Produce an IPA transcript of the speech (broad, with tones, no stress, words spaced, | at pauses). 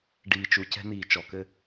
ɖiː˨t͡ʃu˨ cɛ̤˦n̪iː˨t͡ʃɔ˨kɘ˦